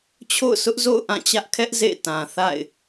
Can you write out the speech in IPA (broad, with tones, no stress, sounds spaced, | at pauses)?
t͡ɕʰ o̰˦˨ ʊ̯ s ʊ˦ ʔ z o̰˦˨ ʊ̯ ʔ ã˦˨ t͡ɕ ä˦ ʔ kʰ ɛ˦ ʔ z ḛ˦˨ t ã˨ θ a̰˦˨ ɪ̯